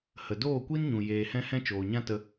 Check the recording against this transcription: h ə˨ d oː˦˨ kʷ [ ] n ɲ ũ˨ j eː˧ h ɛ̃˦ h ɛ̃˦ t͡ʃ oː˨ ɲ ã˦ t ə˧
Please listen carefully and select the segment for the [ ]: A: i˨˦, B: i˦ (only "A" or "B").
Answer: B